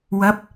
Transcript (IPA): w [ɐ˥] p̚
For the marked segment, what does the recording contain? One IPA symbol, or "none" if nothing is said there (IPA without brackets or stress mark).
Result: ɐ˨˥